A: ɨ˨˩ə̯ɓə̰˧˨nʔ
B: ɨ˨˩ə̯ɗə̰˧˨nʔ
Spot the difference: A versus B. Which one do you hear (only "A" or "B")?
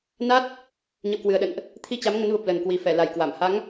B